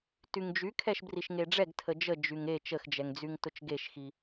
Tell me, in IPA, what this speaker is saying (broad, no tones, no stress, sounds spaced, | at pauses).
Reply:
t y ŋ d͡ʒ y kʰ ɛ ʃ b r i ʃ ŋ e ɖ͡ʐ ɛ ɡ tʰ ə d͡ʒ ə d͡ʒ y ŋ e t͡ʃ ə x d͡ʒ ɛ ŋ d͡z y ŋ t ʊ t͡ʃ ɡ e ʃ x i